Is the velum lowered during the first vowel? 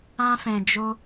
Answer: yes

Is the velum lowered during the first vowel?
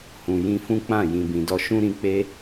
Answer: yes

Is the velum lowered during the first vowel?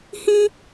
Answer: yes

